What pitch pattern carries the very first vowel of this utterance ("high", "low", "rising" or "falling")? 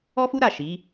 high